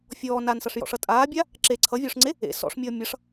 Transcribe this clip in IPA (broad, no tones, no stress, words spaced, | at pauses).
fʲɔː nansʌʂjɔ̰ʂʌ tʼaːbʲa | ǁe ǀʰʌvʲɔːʂŋ͡ǀe | ḛ sɔ̰ʂmʲʌː mʲʌʂ